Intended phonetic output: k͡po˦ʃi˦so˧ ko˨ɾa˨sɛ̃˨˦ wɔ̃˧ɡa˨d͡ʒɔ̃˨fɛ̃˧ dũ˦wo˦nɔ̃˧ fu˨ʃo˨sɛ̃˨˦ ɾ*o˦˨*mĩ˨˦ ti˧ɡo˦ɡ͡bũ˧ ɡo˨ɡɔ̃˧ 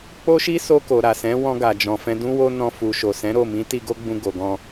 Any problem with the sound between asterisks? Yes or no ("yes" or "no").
no